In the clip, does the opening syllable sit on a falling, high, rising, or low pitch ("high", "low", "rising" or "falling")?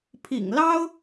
low